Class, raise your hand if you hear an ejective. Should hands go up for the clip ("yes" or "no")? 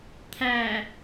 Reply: no